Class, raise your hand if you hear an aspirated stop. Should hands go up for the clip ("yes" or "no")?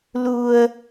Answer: no